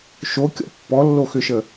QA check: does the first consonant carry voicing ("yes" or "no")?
no